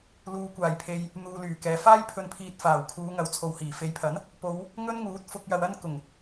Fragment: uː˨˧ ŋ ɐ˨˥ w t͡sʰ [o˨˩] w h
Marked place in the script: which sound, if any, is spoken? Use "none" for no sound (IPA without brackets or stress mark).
o˨